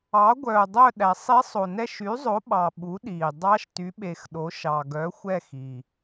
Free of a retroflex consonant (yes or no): yes